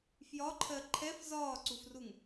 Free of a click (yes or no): no